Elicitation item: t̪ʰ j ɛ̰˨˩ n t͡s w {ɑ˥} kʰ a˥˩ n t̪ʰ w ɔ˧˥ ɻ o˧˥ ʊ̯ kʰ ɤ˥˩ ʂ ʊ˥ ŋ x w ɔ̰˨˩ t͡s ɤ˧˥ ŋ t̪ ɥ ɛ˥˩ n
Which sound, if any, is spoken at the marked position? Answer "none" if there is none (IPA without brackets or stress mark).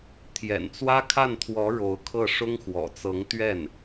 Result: ä˥